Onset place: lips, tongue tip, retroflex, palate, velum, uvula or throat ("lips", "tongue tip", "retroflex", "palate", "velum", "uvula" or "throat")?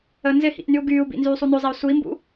tongue tip